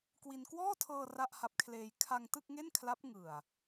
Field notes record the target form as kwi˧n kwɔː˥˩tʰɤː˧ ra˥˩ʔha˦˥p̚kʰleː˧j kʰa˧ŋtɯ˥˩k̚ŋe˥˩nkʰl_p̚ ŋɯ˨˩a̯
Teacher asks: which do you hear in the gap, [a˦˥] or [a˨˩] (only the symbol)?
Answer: a˦˥